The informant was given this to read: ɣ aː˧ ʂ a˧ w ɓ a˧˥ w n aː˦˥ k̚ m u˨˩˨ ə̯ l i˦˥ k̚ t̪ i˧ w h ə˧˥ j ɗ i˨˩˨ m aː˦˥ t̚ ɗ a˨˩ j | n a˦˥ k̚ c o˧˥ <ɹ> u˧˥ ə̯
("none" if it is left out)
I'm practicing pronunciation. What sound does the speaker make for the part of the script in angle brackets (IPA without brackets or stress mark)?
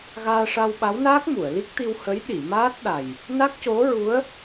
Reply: ɹ